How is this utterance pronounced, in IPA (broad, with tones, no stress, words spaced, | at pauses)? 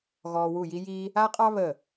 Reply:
ɣɔː˧wu˦˨ji˦jiː˦ | a˦qʼɑ˦ βə˦˨